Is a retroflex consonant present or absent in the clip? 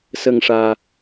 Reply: present